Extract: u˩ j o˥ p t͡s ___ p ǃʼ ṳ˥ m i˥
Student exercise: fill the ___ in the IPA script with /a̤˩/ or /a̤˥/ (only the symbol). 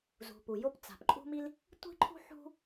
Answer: a̤˩